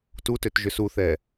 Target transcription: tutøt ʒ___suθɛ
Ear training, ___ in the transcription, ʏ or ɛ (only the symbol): ʏ